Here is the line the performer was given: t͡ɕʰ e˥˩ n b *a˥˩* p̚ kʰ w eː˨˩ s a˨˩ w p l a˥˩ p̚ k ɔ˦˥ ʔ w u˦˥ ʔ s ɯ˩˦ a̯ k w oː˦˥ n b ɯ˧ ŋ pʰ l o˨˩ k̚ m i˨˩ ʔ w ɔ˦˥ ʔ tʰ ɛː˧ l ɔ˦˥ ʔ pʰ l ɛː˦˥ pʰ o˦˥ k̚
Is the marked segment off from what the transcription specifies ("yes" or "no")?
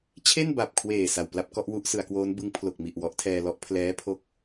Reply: yes